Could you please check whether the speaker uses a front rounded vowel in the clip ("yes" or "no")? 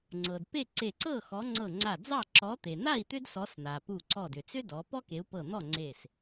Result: yes